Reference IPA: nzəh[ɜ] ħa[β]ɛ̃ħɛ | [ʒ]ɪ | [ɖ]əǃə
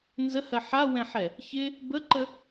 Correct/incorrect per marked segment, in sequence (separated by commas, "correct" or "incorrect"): correct, incorrect, incorrect, incorrect